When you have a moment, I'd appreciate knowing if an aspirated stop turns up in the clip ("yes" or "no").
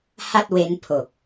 yes